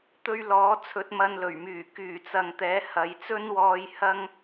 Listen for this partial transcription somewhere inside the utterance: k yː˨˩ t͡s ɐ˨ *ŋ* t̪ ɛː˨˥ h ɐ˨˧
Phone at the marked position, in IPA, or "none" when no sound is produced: ŋ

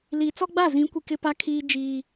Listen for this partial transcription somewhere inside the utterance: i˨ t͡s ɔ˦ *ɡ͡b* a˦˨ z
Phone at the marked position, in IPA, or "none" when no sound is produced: ɡ͡b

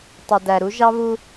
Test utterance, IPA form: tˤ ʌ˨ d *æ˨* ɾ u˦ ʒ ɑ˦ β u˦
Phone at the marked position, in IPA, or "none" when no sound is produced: æ˨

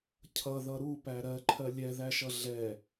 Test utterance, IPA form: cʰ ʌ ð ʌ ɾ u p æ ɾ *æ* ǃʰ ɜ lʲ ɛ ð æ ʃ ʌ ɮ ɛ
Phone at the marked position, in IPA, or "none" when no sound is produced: ɜ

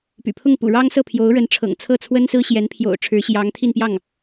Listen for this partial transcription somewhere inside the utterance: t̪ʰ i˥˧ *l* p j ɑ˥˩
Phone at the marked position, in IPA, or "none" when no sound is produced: n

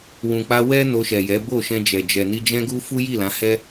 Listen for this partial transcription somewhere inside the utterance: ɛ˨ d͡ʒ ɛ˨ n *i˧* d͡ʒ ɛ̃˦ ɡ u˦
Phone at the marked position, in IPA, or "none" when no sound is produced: i˧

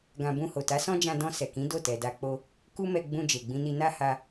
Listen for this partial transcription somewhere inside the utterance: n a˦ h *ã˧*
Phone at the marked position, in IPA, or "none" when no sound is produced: a˧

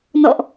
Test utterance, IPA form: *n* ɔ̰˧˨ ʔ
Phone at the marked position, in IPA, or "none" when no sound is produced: n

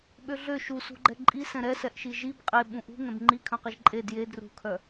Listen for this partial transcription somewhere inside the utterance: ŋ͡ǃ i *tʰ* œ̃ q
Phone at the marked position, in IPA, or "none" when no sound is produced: kʰ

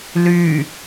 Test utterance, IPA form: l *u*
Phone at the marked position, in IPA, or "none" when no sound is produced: y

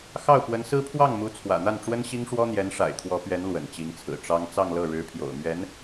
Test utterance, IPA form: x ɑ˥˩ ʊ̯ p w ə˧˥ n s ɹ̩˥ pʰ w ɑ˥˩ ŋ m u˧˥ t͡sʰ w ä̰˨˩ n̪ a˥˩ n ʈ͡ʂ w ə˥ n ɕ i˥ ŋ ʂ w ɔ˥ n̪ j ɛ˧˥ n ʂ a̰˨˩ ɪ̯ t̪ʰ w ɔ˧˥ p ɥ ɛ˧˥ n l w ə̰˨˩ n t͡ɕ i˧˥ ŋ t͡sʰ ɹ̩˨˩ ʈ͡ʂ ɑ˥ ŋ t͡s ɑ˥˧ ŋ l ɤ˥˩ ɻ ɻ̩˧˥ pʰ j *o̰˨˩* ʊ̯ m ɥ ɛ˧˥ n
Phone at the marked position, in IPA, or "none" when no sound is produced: o̰˨˩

